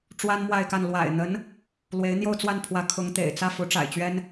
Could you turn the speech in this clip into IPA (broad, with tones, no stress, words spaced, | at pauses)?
ʈ͡ʂwa˥nmwa˥˧ɪ̯ka˥˩n lwa̰˨˩ɪ̯n̪ə˧˥n | lwe˧˥ɪ̯n̪jo˥˧ʊ̯t͡swa˥˩npʰwä˧˥ kʰʊ˧˥ŋt̪ḛ˨˩ɪ̯ t͡sä˥˩ fu˧˥ʈ͡ʂa̰˨˩ɪ̯t͡ɕɥɛ˥n